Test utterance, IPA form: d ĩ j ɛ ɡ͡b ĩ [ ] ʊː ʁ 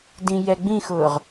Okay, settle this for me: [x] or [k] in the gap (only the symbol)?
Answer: x